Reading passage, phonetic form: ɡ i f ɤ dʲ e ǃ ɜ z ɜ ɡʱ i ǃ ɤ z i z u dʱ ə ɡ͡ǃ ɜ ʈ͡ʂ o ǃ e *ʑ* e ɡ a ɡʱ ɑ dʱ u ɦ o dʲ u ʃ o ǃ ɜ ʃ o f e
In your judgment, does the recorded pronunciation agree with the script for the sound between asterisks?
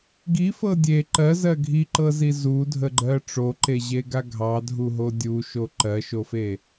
yes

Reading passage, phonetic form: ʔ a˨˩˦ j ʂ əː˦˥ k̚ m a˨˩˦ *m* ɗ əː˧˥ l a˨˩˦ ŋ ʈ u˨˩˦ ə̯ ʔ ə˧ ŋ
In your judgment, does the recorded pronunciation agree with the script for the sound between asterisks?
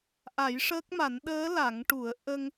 no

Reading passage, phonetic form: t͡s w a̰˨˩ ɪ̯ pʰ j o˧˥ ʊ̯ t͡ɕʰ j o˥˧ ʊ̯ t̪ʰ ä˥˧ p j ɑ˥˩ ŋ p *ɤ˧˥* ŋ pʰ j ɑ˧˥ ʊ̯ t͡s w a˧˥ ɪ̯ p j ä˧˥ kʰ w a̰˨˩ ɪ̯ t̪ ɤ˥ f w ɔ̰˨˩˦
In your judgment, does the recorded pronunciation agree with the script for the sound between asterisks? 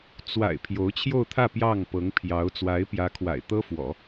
yes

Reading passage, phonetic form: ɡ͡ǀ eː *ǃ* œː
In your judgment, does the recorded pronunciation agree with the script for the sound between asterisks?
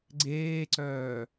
no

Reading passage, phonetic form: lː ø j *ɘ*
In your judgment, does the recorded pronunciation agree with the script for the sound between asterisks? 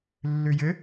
yes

